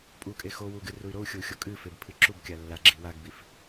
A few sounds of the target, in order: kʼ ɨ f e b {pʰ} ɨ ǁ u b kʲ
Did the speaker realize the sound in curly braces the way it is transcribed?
yes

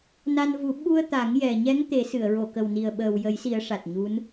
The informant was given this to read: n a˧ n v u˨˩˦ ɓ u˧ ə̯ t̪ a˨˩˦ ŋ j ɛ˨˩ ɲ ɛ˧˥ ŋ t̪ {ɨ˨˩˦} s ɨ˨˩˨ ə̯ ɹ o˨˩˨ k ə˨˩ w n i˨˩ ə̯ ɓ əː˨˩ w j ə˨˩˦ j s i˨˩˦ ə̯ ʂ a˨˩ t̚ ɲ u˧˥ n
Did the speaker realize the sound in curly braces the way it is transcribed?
no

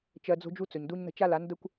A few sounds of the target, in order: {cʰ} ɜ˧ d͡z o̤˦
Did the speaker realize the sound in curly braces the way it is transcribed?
no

